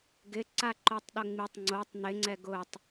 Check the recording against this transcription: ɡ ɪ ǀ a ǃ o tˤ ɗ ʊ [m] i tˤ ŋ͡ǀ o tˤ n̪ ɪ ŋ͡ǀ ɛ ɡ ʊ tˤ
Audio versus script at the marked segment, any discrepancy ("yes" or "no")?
yes